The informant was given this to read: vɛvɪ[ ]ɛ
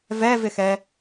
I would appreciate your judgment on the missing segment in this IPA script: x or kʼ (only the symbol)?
x